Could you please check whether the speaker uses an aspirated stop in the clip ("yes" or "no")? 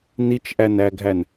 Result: no